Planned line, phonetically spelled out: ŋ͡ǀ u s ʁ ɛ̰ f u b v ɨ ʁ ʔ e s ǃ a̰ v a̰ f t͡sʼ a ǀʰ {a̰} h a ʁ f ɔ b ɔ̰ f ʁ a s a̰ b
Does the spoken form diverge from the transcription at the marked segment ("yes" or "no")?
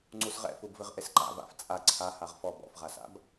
yes